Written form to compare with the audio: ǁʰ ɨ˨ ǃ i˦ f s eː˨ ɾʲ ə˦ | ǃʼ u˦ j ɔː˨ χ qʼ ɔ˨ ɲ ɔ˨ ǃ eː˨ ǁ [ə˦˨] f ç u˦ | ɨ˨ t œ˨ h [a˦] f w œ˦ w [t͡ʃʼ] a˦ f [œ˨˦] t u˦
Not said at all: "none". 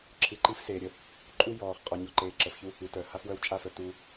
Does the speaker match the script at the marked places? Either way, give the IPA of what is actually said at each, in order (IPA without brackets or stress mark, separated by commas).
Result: ə˨, a˦, t͡ʃʼ, œ˨